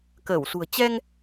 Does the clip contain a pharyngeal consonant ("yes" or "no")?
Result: no